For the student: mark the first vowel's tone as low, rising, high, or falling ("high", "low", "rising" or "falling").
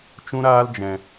high